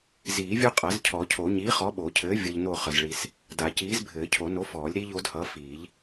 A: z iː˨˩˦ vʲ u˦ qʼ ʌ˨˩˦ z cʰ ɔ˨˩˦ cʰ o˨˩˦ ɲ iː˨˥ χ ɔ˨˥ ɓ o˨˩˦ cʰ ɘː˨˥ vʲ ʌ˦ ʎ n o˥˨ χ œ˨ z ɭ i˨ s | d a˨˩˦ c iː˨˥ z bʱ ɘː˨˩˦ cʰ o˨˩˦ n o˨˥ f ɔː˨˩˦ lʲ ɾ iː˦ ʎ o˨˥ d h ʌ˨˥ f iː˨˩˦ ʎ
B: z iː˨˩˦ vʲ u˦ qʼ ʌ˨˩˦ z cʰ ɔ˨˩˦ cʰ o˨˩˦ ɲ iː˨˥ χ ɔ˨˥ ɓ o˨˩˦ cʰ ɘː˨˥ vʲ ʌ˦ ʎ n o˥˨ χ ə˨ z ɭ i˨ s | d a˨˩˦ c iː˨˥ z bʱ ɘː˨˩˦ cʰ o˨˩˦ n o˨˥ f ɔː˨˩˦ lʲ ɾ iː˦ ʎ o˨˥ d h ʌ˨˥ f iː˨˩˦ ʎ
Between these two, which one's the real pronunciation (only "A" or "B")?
B